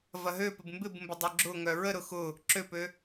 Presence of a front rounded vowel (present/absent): present